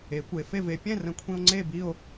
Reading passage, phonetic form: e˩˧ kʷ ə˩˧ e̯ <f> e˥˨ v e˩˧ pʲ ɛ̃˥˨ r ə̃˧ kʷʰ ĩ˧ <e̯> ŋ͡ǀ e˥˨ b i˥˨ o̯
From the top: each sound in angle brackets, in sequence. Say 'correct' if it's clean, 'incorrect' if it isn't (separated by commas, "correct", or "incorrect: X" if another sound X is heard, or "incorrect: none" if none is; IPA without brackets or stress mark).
correct, incorrect: o̯